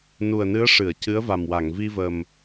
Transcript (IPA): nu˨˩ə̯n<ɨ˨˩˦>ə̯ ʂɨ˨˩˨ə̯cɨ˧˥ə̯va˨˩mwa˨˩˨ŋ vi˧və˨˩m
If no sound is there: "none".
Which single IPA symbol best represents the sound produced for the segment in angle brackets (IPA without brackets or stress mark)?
ɨ˧˥